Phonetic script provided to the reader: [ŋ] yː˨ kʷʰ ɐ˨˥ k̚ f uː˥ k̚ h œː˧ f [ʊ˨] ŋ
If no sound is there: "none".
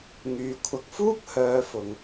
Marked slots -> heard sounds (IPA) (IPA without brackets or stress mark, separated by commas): ŋ, ʊ˨